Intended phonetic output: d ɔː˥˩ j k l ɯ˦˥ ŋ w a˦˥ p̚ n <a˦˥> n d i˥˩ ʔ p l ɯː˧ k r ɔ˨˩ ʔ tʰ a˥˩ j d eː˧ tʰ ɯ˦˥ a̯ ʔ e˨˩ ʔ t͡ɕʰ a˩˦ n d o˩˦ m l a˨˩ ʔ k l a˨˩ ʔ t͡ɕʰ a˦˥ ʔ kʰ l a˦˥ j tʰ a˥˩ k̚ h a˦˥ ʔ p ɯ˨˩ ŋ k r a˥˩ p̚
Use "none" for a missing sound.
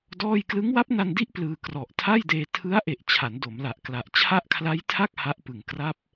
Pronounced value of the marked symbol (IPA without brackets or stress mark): a˧